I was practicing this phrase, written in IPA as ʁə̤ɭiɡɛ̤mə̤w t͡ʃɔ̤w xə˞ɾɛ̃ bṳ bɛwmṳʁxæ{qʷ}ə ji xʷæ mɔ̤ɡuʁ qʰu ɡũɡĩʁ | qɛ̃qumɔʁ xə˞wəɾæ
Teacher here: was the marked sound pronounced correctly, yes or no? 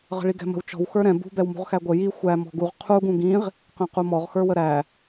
no